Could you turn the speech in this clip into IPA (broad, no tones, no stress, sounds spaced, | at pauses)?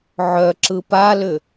ʕ œ ǁ ɯ p a l ʏ